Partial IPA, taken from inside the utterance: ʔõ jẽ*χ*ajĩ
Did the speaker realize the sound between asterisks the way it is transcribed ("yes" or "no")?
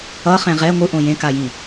no